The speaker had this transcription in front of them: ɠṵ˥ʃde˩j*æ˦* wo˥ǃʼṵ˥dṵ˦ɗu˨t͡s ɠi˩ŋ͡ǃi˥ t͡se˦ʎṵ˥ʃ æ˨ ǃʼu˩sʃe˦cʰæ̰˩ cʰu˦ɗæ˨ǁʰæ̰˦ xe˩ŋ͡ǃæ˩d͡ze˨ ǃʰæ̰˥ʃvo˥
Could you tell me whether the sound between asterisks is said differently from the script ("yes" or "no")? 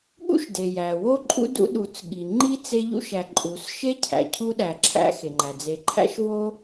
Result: yes